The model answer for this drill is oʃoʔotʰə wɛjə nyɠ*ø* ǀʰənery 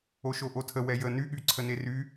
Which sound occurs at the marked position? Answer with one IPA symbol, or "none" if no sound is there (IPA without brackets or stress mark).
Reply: y